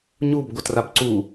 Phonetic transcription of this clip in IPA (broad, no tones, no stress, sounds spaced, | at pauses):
ɲ u b ɡʷ ʌ t r a b ǀ u